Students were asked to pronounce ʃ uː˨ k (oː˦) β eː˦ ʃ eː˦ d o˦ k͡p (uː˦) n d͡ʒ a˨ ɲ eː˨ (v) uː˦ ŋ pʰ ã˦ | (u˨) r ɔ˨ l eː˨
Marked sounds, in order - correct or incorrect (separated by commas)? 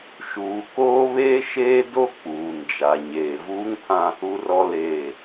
correct, incorrect, correct, correct